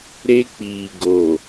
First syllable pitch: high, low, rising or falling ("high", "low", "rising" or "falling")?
high